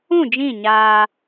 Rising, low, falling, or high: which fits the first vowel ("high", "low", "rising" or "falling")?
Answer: falling